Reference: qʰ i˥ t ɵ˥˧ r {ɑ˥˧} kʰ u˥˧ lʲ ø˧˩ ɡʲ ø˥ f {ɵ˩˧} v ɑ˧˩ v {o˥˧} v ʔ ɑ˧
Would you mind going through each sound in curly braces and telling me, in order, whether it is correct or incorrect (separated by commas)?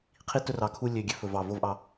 incorrect, correct, correct